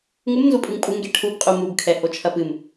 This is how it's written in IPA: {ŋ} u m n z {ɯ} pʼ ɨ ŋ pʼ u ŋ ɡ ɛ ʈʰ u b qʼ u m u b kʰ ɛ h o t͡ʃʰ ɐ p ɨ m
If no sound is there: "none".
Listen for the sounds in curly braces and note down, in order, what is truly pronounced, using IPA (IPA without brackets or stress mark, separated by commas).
ŋ, u